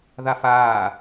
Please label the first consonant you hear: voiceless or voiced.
voiced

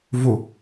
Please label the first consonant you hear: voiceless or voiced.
voiced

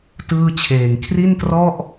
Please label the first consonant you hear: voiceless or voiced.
voiceless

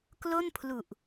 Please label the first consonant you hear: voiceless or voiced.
voiceless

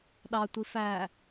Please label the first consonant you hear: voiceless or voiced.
voiced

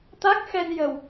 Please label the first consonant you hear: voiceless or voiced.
voiceless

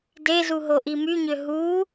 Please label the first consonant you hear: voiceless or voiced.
voiced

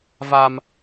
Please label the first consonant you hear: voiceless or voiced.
voiced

